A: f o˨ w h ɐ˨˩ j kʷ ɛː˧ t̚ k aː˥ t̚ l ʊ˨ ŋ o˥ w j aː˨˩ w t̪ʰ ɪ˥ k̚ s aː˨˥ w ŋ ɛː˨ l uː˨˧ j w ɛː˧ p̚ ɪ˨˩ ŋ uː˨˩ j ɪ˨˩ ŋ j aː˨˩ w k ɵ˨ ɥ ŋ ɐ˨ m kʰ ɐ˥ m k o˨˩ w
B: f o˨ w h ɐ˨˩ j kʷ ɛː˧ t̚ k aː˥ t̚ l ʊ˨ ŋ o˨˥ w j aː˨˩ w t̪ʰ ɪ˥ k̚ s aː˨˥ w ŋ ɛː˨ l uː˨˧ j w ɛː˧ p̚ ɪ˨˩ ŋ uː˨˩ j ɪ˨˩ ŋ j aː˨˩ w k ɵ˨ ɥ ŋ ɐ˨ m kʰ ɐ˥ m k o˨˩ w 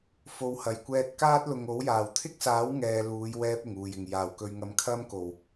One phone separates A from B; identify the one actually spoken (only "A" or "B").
B